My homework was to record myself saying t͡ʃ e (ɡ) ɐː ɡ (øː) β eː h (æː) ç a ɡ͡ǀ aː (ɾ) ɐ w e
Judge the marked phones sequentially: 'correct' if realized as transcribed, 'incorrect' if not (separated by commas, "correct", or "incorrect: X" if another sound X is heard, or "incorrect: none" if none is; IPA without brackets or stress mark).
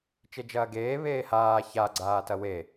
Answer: incorrect: d͡ʒ, incorrect: eː, incorrect: aː, incorrect: t